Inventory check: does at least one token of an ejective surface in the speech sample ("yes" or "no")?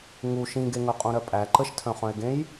yes